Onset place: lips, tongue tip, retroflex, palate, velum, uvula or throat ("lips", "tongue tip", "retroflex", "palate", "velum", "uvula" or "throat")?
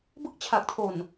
lips